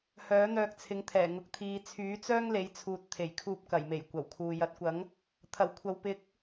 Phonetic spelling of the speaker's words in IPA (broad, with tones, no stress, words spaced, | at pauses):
hœː˨˥n̪œː˧k̚t͡sʰɪ˨˥ŋt̪ʰɛː˨˩ ŋʊ˧k̚t̪ʰiː˧ t͡sʰyː˨˥t͡sœː˥ŋle˨˧jt͡sʰuː˨t̚ t̪ʰe˨˩jkʰuː˧p̚kɐ˨˩jme˨˩j kʷɐ˨˩wkʰuː˨ jɐ˨˥t̚kʷɐ˨˥ŋ | t̪ʰɐ˨˩w kʷʰɐ˨w pɪ˨˥k̚